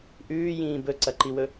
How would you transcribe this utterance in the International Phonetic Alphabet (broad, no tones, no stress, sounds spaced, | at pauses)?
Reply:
ʔ ʉː j ĩː b ɵ ǀ ɐ ǃ i w ɵ